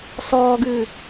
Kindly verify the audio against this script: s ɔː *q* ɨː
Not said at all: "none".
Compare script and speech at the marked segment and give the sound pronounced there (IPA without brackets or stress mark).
ɡ